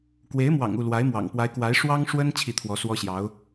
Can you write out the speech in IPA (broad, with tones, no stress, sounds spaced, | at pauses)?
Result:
k w e˧˥ ɪ̯ m w ɑ̰˨˩ ŋ u˥˩ l w a˧˥ ɪ̯ m w ɑ̰˨˩ ŋ p w a˧˥ ɪ̯ k w a˧˥ ɪ̯ ʂ w ɑ˥ ŋ ʂ w ə˥ n t͡ɕʰ i˥˩ t̪ʰ w ɔ˧˥ s w ɔ˥ ɕ j ɑ˧˥ ʊ̯